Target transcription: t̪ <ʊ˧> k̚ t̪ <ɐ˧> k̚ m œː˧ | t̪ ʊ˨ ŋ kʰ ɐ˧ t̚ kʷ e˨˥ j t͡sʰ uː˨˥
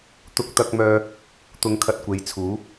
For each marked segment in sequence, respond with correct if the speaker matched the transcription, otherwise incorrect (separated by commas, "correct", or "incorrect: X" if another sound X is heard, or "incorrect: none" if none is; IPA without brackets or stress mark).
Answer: correct, correct